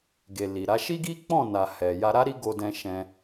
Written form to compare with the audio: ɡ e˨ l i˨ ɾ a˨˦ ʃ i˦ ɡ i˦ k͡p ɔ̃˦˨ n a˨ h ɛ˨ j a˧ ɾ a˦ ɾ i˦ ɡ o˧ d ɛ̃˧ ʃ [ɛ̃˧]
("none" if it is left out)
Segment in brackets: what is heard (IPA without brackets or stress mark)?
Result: ɛ̃˧